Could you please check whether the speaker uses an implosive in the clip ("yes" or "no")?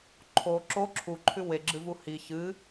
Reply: no